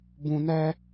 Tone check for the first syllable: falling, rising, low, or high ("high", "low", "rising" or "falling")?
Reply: low